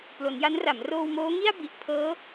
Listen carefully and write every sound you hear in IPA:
p l o˩˦ n j a˦˥ n r a˩˦ m r oː˧ w m oː˦˥ ŋ i˥˩ a̯ b i˨˩ ʔ pʰ ɤː˦˥

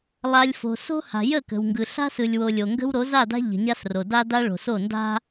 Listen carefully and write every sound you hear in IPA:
lˠ a˨ lʲ f o̤˨ s o̤˦ h a̤˨ j ə˦˨ k ə̤˨ w ŋ ɡ ɯ˨ ɬ a̤˦ s ɯ˨ lʲ w o˨ lʲ o˨ ŋ ɡ ə̤˦ w ɾ o˨˦ z a˦˨ d a̤˦ ʎ ə̤˨ ɲ a˦ s r o˨ d a˦ d a˦ ɭ o̤˨ s o˦˨ n d a̤˦

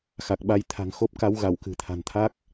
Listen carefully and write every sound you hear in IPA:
x a˨˩ k̚ ɓ a˧ j t̪ʰ a̤˨˩ ŋ x o˦˥ p̚ k a˨˦ w ɣ a˧˩ w k ɨ̤˨˩ t̪ʰ a̤˨˩ n t̪ʰ a˦˥ k̚

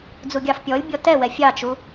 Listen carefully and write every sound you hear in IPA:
d͡z u ɡʲ ɑ f pʲ ɔ lʲ bʲ ɔ t ɛ w ɛ fʲ ɑ t͡ʃ u

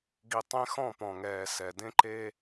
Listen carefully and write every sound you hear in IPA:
ɡ i˨ tˤ ẽ˦ x ɔ̃˦˨ p ɔ̃˨ ŋ ɛː˨ s ɛ˨ d ẽ˦ ǃ eː˦

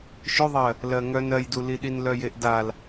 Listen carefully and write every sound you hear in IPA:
ʃ ʏ ðˤ ɜ | l ɜ ŋ œ n ɜ j d u l i ɗ i n l œ j e ʔ d a l

